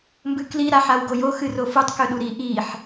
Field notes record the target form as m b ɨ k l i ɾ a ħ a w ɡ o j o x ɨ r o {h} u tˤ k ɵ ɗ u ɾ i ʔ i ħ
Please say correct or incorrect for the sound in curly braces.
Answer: incorrect